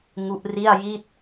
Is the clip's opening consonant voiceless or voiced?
voiced